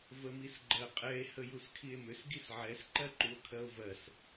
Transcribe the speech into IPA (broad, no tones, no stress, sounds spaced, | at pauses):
v ə m i s ɡ͡ǃ ɜ qʼ ɛ e̯ h ə j u s kʰ i e̯ m ʏ s ɡ i s ʕ ɛ s ǃ ɜ ǃ u o̯ kʰ ɜ o̯ v ɜ s